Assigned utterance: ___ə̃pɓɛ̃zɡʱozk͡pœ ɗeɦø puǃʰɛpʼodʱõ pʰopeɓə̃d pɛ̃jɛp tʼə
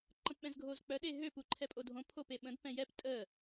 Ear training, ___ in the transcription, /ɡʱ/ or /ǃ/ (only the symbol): ǃ